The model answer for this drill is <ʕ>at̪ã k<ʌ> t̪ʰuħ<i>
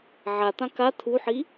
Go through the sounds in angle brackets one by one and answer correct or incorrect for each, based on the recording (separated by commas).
correct, incorrect, correct